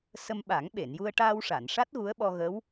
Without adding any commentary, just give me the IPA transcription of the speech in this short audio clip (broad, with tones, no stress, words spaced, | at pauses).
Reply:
sə˧mɓa˨˩˦ŋɓe˨˩˨n ju˧ə̯ʈaː˧wʂa˨˩˨nʂa˦˥t̚ ɣu˧˥ə̯ɓɔ˧ɣə˧˥w